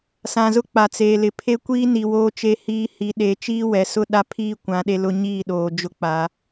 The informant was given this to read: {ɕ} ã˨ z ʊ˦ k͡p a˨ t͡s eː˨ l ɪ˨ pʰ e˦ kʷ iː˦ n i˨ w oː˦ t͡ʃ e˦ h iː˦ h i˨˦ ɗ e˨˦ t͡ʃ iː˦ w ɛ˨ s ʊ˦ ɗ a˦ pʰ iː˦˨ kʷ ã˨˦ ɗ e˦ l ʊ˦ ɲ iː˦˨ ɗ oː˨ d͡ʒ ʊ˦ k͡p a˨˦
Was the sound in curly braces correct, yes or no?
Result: no